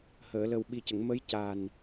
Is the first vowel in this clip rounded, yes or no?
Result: no